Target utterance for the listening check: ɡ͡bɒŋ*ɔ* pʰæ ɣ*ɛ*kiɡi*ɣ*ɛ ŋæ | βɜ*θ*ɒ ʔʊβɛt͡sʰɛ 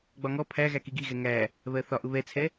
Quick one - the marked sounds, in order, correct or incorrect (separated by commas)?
correct, incorrect, correct, correct